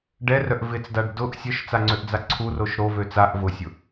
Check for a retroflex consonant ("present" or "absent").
present